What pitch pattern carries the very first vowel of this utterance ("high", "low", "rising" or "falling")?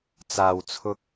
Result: low